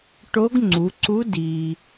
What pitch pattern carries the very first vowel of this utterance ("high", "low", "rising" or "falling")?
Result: rising